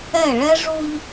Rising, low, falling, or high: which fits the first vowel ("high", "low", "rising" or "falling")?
falling